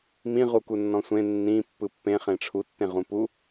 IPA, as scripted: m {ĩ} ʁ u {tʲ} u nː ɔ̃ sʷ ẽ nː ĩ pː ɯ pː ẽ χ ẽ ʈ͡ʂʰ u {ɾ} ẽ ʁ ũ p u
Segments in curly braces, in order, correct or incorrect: correct, incorrect, incorrect

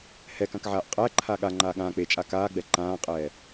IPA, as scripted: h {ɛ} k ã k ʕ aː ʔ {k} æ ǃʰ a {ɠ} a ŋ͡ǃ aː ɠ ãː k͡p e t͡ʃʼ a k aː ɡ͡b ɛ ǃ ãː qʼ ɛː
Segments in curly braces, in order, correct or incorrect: correct, incorrect, correct

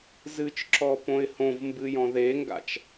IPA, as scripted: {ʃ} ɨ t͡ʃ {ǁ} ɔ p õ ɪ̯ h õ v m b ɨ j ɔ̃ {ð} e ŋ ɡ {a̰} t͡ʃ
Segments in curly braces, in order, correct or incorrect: incorrect, correct, correct, correct

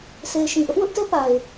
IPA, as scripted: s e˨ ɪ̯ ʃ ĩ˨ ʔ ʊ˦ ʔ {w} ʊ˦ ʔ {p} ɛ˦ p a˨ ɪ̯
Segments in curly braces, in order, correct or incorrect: correct, incorrect

